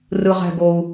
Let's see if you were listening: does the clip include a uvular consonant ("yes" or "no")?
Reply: yes